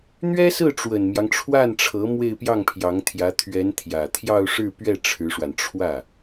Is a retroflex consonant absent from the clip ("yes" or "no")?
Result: no